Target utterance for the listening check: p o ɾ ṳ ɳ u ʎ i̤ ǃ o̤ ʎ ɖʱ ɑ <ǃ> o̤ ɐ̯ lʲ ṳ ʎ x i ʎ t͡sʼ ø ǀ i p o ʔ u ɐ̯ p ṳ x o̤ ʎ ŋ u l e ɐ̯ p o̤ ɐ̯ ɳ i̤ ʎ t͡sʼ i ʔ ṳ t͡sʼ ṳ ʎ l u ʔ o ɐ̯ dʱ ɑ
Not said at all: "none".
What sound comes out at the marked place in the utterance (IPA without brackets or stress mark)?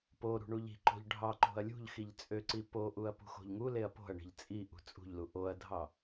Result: ǃ